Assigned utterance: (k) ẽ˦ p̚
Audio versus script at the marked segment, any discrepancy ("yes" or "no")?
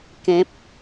no